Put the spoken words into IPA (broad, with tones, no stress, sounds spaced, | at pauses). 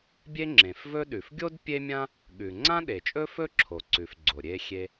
bʲ e˥ ŋ͡ǁ ẽ˩ f v ɵ˥ ɗ ʉ˩ f ɡʲ o˥ d pʲ e˥ mʲ ã˥ | ɠ ʉ˩ ŋ͡ǀ ã˥ ɗ e˩ t͡ʃʼ ɵ˥ f ɵ˥ ǁʰ o˩ ǀ ʉ˩ f ɡ͡ǀ o˩ ɾʲ e˥ xʲ e˥